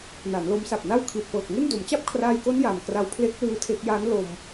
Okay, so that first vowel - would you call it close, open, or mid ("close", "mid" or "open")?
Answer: open